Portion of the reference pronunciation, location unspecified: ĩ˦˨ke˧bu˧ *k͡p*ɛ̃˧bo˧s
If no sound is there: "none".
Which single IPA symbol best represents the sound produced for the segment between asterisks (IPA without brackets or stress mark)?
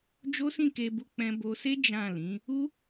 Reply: k͡p